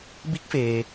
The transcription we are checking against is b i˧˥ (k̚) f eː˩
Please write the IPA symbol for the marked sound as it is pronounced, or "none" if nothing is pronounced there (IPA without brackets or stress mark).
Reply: k̚